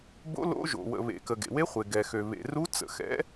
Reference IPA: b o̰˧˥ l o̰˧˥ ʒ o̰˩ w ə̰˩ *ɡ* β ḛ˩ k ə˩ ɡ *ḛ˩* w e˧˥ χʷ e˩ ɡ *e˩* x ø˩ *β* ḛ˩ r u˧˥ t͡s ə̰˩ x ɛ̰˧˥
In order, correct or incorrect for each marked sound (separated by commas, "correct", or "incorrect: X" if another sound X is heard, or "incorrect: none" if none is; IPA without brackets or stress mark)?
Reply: incorrect: none, correct, incorrect: ɛ˩, correct